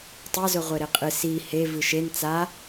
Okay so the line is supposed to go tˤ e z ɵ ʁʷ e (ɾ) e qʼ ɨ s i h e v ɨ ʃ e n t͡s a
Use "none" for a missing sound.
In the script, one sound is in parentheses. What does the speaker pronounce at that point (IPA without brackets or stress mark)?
ɾ